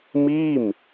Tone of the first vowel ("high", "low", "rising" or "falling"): falling